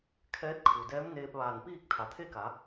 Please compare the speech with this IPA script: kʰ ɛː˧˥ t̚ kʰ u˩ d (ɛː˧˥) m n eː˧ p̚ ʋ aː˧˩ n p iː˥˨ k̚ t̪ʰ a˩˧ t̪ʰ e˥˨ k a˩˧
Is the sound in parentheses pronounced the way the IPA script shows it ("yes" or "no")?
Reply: yes